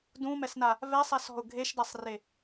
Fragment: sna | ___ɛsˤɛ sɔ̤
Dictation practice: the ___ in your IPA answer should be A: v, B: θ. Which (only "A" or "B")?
A